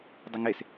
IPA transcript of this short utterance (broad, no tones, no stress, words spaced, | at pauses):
dˤəŋes